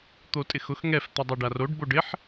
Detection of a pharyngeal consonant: present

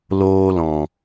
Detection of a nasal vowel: present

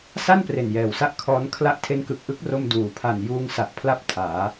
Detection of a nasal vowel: absent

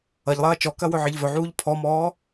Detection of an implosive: absent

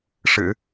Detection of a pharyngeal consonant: absent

